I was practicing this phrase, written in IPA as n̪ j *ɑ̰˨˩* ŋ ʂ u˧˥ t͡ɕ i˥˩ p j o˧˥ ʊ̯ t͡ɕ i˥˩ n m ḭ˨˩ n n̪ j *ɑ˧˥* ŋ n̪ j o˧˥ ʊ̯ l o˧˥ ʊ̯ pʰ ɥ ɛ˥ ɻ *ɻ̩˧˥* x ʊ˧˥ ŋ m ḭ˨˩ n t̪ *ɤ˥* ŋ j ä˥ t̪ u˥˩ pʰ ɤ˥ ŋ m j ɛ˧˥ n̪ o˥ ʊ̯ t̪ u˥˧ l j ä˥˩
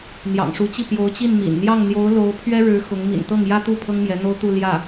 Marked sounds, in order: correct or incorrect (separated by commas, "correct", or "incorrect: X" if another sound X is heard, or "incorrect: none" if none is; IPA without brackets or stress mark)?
correct, incorrect: ɑ˥˩, correct, incorrect: ɤ˥˩